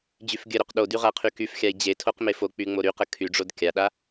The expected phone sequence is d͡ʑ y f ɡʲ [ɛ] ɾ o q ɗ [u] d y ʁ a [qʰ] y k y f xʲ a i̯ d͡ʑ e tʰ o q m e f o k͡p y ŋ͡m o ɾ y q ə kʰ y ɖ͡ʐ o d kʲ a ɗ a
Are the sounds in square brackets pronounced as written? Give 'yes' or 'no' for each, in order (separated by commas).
no, no, yes